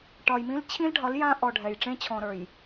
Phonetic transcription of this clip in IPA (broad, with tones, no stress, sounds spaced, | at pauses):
ʈ ɒ˨ j m ĩ˦ l t͡ɕʰ ĩ˦ l ɖʱ ɒ˨˦ l j ã˦ ʔ ɔ˨ ɖʱ ɛ˨ j ʈ͡ʂ ẽ˦ t͡ɕʰ ɔ̃˨ ɾ ə˞˨ j